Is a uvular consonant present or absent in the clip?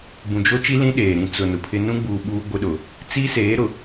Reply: absent